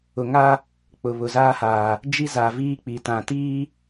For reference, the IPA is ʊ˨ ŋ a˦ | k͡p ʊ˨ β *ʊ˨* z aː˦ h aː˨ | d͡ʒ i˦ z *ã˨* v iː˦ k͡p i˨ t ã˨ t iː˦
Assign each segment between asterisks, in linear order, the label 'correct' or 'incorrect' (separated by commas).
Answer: correct, incorrect